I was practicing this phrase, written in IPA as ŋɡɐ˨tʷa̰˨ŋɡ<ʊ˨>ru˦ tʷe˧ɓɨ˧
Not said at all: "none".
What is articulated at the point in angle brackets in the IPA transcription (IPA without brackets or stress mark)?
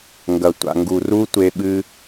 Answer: u˨